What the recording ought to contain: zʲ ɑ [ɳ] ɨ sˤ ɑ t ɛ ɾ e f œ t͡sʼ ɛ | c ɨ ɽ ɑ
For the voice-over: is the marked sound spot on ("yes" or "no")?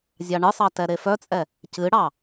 yes